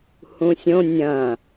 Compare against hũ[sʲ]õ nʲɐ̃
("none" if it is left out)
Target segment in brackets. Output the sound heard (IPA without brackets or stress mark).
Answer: sʲ